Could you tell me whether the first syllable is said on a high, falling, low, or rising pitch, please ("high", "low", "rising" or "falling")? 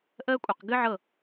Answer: high